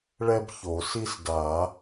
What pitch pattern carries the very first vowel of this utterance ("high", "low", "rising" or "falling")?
high